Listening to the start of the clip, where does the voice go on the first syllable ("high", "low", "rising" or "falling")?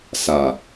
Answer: low